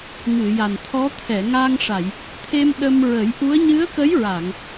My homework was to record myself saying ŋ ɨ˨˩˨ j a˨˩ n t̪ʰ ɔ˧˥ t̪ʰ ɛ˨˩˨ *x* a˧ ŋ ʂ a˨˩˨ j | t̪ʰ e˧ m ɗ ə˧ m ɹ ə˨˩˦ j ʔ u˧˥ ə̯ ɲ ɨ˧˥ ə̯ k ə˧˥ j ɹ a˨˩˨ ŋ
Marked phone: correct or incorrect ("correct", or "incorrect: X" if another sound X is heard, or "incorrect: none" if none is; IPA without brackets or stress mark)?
incorrect: ŋ